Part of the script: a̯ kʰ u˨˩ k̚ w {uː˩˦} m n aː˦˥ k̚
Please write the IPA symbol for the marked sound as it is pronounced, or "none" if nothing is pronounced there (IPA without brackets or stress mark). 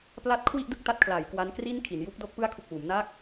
uː˩˦